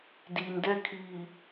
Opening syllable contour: low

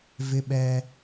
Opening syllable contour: high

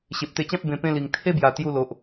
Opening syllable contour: low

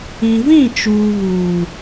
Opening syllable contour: low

